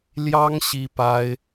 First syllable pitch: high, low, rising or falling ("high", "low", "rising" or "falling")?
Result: high